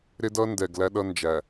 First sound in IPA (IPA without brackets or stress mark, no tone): ɾ